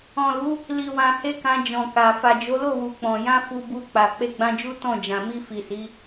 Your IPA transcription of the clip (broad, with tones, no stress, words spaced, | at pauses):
ɔ̃˨lu˨˦ | li˨wã˨he˧ kã˧d͡ʒɔ̃˨ka˨ fa˨d͡ʒo˨˦lo˦˨wu˨ k͡pɔ̃˨jã˧ fu˧bu˧k͡pa˨ k͡pe˧ɡ͡bã˧d͡ʒu˦ tɔ̃˦˨d͡ʒã˨ mi˧fi˨si˨˦